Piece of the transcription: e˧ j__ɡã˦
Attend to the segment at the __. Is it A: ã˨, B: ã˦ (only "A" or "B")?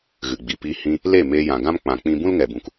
A